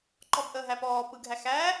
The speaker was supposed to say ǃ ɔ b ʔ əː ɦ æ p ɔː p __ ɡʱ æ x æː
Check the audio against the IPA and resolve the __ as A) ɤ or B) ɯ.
B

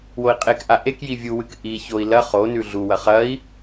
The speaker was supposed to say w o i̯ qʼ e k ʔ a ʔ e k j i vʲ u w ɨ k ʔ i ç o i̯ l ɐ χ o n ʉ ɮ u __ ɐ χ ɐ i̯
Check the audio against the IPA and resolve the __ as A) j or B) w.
B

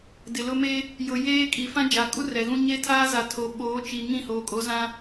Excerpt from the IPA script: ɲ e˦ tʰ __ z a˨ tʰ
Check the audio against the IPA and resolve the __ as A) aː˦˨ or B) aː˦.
B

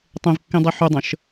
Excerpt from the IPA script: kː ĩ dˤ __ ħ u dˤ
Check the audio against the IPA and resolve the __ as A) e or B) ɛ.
A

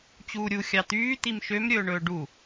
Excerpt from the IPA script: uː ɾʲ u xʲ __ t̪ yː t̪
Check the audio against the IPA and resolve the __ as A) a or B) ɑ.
B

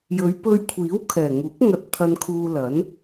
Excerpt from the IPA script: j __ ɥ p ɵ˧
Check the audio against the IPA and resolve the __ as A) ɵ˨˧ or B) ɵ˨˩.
A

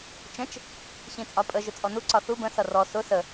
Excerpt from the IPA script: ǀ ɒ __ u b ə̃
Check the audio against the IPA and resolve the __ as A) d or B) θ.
B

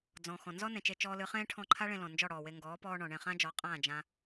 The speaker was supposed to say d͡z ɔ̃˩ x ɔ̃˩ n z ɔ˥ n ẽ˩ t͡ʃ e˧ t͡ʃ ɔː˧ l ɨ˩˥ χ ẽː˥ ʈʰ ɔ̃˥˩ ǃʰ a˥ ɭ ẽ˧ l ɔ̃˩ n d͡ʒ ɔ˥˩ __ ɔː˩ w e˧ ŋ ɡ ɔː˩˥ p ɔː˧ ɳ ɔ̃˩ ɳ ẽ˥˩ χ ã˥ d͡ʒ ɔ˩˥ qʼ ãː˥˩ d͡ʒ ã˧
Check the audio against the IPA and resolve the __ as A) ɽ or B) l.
A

